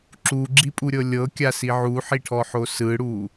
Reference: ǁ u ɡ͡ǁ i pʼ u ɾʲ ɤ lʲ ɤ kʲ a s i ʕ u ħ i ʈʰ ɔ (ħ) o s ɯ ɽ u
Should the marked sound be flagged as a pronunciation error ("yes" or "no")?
no